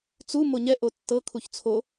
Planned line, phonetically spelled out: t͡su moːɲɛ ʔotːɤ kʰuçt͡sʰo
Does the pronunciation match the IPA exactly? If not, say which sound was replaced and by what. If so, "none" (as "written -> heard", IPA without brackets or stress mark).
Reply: oː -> o